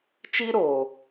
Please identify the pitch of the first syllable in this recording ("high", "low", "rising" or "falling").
high